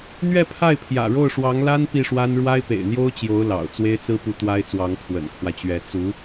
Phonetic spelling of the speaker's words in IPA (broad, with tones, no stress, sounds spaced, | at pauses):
n̪ ɥ ɛ˥˧ pʰ a˥˩ ɪ̯ pʰ j ä̰˨˩ ɻ o˥˩ ʊ̯ ʂ w ɑ˧˥ ŋ l a˥ n p i˥˩ ʂ w a˥ n ɻ w a˥ ɪ̯ p ḛ˨˩ ɪ̯ n̪ j o˥ ʊ̯ t͡ɕ j o˧˥ ʊ̯ l ɑ̰˨˩ ʊ̯ t͡s w e˥ ɪ̯ t͡s ɹ̩˥ p u˧˥ t̪ w a˥ ɪ̯ t͡s w ɑ˧˥ ŋ pʰ w ə̰˨˩ n kʰ w ä˦ t͡ɕ ɥ ɛ˧˥ t͡s u˧˥